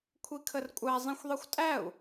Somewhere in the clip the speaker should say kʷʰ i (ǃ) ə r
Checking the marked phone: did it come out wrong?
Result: yes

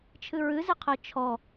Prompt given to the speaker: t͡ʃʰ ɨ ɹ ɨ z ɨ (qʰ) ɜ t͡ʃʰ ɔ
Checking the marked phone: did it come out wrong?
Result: no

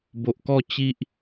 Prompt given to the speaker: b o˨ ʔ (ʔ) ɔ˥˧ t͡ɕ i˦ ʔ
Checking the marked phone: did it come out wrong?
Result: yes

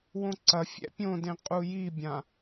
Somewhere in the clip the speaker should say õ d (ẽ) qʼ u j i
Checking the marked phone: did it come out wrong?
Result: no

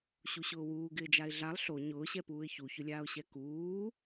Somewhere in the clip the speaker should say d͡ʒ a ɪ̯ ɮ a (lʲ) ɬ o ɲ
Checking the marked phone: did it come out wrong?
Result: yes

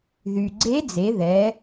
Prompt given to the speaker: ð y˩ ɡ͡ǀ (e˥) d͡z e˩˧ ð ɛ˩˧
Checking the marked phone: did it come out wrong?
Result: yes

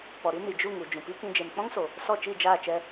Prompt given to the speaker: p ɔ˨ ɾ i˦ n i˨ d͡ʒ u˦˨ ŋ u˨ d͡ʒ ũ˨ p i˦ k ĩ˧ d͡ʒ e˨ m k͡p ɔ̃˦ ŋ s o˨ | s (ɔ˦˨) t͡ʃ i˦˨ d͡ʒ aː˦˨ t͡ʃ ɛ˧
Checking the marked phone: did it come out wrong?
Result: no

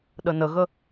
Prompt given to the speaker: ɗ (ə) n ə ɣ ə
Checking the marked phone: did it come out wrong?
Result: no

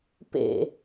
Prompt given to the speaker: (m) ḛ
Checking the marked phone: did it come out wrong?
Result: yes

